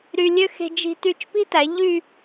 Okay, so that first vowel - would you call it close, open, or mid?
close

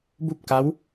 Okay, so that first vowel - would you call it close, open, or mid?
close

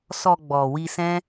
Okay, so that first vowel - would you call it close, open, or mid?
mid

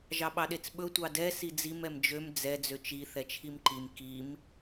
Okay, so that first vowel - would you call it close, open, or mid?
open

